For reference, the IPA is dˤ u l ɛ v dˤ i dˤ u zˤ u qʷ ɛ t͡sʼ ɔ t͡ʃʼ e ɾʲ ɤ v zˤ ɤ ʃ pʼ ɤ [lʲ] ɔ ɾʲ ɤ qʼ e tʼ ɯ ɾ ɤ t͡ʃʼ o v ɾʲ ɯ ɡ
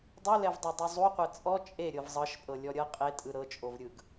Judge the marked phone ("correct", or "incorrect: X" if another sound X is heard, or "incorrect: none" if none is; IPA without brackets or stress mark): correct